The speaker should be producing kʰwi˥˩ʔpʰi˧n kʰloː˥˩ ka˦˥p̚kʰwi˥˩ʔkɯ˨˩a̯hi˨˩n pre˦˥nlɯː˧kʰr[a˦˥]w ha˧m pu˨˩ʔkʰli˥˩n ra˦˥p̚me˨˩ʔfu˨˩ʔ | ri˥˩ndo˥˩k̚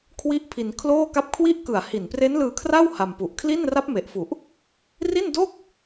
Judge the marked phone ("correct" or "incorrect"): incorrect